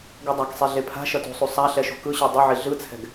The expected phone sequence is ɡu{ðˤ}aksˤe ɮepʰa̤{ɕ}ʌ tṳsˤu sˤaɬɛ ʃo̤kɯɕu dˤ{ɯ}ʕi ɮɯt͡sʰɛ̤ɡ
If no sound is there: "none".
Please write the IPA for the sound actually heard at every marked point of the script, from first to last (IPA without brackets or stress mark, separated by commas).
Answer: dˤ, ʃ, u